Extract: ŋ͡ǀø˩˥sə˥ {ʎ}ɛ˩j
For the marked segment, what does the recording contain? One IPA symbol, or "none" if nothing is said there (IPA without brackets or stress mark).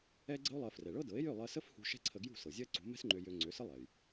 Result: lˠ